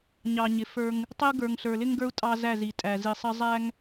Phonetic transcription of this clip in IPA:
ɲ ɑ˨ ɲ ɪ˨ f ə˞˦ ŋ | tˤ ɪ˦ u̯ ɡ ə˞˨ ŋ ɬ ə˞˨ l ɪ˦ ŋ ɡ ə˞˦ u̯ tʼ ɑ˦ z æ˦˨ z i˨ tʼ æ˨ z i˨ sˤ ə˦ zˤ æ˦ ŋ

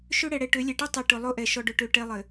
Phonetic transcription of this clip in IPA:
ʃ ø˦ ɽ ɛ˨ ɽ ɛ˨ ʈ ø˨˦ lʲ ɛ˨ ʈ i˦ tˤ ɛ˨ ʈ ʊ˨ lˠ o˦ ʔ ɛ˨ ʃ ɔ˨ ɖ ʊ˨ ʈ ø˨ ʈ ɛ˦ lˠ ɘ˨

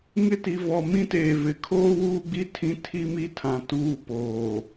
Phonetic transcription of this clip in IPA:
ŋ ɪ˦ t i˨ v ɔ˨ m ĩ˦ t eː˨ v ɪ˨ kʰ oː˦ w uː˦ ɡ͡b i˦ tʰ ĩ˦ tʰ i˦ m i˦ tʰ ã˨ t uː˦ p oː˨

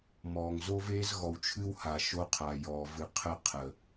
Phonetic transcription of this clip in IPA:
m ɔː˨ ŋ z o˦ v eː˦ z ɣ ɔ˨ w t͡ʃʰ ɨ˦ w h a˨ ʃ o˦ qʰ a˨ j ɔː˨ v ɨ˨ qʰ ə˦ qʰ ə˨

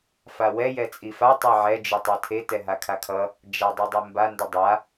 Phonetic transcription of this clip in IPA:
f a w ɛ j ɛ t͡sʼ i f a tˤ ɛ ʕ ɛ d͡ʒ ɯ tˤ ɛ tʰ e t ɛ ɦ a kʰ a kʰ ʌ | d͡ʒ a dˤ ɯ dˤ e m b a n d ʌ dˤ a

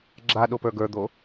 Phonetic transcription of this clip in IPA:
ɡ͡ǁ a ɗ o p ə˞ ɡ ə˞ d̪ o

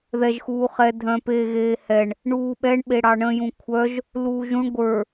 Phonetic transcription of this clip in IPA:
ð ɛ ʒ x uː χ ɛ dʱ œ̃ p eː ɣ eː h ɛ ɳ | ɳ uː ɓ ɛ ɳ ɓ e ɽ ɑ ɳ ə̃ j ũ kʷʰ œ ʒ | l uː ʒ ũ ɳ ɡʷ ə˞

